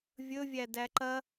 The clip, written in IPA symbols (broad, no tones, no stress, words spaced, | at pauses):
vʲɵvʲædæ ǃɐ